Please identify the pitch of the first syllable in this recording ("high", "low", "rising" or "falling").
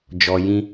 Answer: low